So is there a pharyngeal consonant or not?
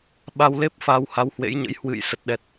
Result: no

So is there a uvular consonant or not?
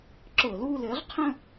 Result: yes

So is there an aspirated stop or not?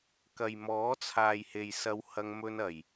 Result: yes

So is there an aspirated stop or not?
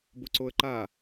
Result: no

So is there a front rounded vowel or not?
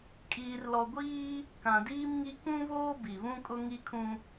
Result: no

